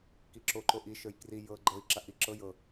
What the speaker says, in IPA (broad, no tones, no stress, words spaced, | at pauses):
kiǁo ǃoʔi ʃə˞jkri jɤ ɡ͡ǃɤi̯ ǁaʔi ǁɤ jɤ